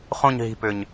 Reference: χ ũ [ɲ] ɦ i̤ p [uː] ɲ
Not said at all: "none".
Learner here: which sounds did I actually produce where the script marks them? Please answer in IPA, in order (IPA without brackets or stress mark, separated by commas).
ɲ, ʏː